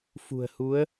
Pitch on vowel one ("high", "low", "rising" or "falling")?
low